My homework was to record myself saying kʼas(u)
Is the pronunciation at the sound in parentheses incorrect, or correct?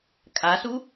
correct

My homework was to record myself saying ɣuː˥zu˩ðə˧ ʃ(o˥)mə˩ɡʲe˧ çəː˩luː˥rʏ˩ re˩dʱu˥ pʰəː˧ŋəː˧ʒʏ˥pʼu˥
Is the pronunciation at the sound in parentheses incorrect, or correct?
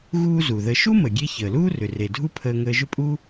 incorrect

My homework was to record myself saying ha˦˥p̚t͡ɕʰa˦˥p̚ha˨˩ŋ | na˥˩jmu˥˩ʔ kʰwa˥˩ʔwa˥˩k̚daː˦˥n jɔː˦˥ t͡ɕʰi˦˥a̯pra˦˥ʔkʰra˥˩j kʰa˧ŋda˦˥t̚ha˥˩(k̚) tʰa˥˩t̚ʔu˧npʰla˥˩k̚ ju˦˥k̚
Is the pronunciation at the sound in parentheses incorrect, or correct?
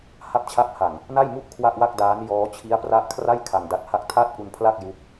correct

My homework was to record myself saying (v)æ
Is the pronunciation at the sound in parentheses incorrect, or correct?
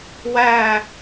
incorrect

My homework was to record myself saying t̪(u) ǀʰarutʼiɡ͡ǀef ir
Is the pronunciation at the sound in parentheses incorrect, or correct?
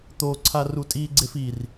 incorrect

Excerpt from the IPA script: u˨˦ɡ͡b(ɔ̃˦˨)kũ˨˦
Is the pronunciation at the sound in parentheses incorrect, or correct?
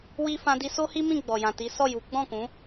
correct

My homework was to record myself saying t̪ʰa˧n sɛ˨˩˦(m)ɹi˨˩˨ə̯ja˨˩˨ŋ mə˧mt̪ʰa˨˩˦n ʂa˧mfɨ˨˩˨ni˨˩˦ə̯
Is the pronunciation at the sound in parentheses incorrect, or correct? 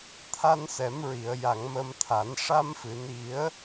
correct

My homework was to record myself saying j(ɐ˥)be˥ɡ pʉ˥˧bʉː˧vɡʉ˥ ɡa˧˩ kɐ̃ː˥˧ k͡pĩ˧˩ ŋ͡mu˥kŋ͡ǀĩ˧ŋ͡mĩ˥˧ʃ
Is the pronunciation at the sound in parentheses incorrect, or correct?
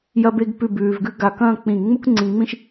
correct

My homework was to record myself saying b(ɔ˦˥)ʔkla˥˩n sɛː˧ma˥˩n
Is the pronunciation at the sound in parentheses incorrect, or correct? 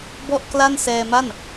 incorrect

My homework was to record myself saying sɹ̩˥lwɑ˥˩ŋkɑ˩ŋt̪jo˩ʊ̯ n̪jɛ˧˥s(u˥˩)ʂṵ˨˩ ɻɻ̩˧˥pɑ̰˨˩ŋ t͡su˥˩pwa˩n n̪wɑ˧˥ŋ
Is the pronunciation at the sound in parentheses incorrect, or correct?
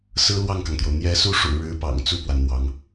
correct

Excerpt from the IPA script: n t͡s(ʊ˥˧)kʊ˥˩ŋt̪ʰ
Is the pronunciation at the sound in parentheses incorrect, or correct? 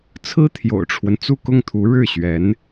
incorrect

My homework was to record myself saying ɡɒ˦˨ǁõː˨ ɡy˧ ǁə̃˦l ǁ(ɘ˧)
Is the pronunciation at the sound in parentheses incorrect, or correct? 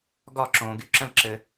correct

